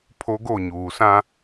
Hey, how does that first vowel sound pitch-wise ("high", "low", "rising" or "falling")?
high